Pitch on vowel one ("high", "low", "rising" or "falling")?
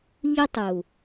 high